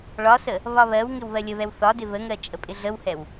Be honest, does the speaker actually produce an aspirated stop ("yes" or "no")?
no